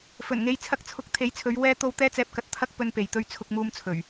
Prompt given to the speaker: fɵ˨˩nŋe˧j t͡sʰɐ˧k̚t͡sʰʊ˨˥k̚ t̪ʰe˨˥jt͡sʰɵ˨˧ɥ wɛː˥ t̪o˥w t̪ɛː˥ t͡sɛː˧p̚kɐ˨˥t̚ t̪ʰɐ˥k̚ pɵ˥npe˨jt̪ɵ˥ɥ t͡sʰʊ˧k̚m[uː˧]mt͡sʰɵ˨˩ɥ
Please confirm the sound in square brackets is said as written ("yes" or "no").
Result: yes